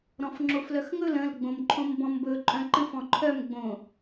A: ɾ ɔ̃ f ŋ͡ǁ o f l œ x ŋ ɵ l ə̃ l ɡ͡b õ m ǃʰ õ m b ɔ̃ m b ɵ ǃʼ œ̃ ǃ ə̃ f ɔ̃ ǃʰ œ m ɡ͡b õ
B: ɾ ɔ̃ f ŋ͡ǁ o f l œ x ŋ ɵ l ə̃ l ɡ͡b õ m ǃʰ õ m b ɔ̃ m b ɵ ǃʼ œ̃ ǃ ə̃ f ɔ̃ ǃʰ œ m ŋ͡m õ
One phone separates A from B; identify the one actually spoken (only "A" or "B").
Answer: A